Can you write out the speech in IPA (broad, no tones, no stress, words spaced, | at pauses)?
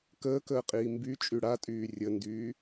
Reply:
kəːkəːqʼiː mby t͡ʃʼyɽatʼyː rʲəndyː